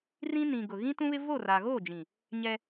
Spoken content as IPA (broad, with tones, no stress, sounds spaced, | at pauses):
r ĩ˦ n ĩ˨ ɡ ʊ˨ ɣ ĩ˦ t ũ˦ β ɪ˦ v o˦˨ r a˨ ɣ oː˦˨ d͡ʒ ĩ˨ | ɲ ɛ˦